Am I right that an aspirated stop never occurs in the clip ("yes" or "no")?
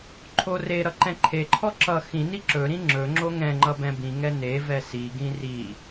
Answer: no